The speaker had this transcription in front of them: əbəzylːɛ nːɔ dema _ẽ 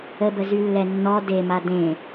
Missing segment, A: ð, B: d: B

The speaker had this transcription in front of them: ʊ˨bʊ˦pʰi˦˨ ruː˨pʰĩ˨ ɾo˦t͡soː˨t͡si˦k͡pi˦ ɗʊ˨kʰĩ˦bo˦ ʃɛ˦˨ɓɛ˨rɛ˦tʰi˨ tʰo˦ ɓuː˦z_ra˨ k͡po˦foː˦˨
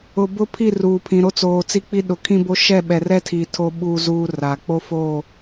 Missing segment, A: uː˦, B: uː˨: A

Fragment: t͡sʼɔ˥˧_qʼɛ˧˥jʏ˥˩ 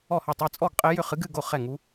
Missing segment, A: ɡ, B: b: A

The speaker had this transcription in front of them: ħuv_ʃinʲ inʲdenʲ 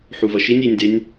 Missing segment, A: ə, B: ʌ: B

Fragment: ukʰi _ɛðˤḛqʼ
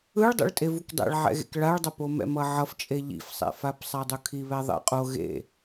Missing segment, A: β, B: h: A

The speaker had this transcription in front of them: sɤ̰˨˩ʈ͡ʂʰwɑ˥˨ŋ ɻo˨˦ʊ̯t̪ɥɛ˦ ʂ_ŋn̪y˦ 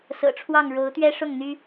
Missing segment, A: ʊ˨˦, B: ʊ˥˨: B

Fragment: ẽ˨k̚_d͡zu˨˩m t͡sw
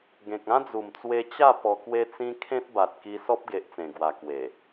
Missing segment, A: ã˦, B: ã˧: A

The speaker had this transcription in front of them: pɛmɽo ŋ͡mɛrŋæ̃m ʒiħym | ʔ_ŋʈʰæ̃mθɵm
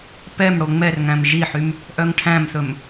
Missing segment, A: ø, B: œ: B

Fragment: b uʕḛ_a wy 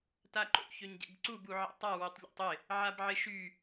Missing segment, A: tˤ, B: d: A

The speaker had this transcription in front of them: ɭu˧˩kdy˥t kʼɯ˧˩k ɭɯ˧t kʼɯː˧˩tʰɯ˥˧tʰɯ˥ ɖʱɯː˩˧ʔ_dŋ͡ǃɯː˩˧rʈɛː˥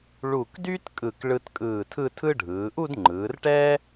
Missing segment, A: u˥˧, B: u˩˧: A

